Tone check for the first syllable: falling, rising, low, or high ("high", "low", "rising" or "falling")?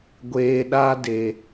low